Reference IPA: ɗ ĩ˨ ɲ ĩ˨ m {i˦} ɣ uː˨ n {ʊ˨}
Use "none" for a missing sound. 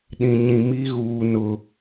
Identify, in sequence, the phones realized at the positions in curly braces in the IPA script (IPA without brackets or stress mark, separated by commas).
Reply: i˦, ʊ˨